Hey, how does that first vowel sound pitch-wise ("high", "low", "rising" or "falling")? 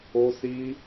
high